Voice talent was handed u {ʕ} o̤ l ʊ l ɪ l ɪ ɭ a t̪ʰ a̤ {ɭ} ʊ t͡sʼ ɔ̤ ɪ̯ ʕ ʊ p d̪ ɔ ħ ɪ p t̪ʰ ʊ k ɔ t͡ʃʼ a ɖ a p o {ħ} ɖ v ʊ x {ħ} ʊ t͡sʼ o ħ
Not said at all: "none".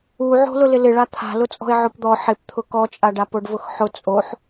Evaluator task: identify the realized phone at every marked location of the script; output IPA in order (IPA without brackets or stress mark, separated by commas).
ʕ, l, none, ħ